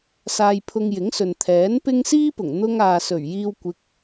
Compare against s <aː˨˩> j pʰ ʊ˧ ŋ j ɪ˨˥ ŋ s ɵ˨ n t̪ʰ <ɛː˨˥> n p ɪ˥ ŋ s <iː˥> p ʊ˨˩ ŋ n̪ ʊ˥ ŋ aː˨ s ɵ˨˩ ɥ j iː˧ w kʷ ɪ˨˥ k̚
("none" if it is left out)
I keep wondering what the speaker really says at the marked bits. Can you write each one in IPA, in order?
aː˧, ɛː˨˥, iː˥

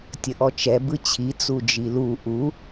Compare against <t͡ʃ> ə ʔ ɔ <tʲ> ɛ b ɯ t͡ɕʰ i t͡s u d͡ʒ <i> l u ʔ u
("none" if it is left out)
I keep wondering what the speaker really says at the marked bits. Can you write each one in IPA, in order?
tʲ, t͡ʃ, i

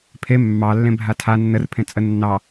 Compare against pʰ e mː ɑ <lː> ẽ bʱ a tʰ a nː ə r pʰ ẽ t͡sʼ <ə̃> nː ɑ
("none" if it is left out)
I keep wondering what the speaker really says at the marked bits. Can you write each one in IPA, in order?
lː, ə

